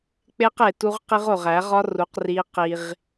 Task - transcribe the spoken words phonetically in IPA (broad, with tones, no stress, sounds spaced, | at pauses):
k͡p e˦ q e˨ t u˦ ʁ q i˦ ʁ o˨ ʁ æ˨˦ ʁ ɒ˦ r u˨˦ q r i˦ q i˦ ʁ